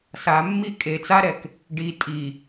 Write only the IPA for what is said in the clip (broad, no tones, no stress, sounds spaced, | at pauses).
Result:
s a mː i kʼ e t͡s a ɾ ɛ k | ɖ i tʼ i